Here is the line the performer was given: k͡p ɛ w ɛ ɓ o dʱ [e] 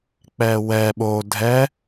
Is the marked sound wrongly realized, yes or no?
yes